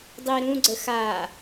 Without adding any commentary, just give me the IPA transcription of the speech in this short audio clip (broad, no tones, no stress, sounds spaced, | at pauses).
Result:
dˤ i ɾ ũ ɡ͡ǀ ə x a